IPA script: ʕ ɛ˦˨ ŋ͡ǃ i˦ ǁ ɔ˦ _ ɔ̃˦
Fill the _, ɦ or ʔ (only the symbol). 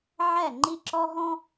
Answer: ɦ